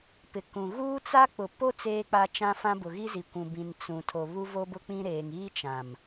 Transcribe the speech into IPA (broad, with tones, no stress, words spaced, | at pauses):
pɪ˨kũ˨ ɣuː˦t͡sa˦k͡pʊ˨po˦ t͡seː˦k͡pa˦t͡ʃã˦fã˦ bʊ˨ɣi˦zi˨kʷũ˨ bĩ˨n t͡sũ˨ tʰo˨ βu˦ vo˦bʊ˦k͡pĩ˦ɾeː˨ŋ iː˦t͡ʃã˨m